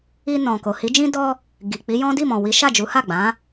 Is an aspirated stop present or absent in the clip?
absent